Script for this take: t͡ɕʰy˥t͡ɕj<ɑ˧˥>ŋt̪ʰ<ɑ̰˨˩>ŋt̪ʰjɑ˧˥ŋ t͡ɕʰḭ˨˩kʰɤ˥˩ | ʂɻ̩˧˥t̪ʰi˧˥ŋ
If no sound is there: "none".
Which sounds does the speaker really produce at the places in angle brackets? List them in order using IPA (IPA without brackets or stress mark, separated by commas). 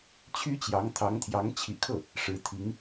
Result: ɑ˧˥, ɑ˧˥